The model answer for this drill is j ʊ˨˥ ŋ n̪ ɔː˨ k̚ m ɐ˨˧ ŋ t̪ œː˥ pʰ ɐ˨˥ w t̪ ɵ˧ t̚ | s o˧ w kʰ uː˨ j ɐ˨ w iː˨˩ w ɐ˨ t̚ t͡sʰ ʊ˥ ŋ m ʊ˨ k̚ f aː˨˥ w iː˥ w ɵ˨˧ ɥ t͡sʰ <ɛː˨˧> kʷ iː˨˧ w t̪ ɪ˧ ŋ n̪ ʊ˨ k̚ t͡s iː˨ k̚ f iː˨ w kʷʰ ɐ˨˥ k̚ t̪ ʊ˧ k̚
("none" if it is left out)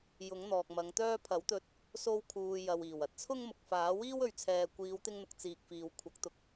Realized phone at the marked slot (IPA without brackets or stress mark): ɛː˨